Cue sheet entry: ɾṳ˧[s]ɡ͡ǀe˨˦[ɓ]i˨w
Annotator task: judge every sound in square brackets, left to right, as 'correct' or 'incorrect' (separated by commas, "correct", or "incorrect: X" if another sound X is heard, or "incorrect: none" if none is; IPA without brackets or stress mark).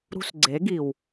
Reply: correct, incorrect: ɡ